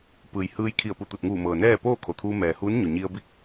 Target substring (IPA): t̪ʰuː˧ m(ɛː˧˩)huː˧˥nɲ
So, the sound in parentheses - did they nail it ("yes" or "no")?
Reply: no